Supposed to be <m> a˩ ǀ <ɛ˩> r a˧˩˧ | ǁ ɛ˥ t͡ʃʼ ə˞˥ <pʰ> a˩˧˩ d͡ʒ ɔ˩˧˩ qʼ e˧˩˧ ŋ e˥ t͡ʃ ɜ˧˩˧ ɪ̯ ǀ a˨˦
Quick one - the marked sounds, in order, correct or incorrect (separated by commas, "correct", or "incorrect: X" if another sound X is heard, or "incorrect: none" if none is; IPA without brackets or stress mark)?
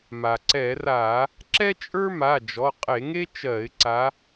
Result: correct, incorrect: ɛ˧˩˧, incorrect: m